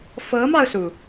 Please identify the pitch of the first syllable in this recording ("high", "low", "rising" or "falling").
rising